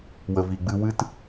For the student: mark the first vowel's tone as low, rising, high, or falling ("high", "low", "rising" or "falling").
low